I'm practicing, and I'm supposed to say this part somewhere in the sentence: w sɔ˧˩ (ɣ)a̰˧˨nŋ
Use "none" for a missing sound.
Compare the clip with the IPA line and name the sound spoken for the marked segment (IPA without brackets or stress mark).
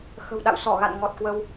ɣ